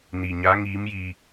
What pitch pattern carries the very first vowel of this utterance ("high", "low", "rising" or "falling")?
low